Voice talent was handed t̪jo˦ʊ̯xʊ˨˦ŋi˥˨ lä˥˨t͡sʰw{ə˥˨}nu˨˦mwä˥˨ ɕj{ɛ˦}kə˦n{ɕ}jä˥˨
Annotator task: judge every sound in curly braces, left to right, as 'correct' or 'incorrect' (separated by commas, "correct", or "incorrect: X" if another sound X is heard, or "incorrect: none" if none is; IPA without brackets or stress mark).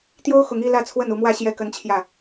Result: correct, incorrect: ɛ˥˨, incorrect: t͡ɕʰ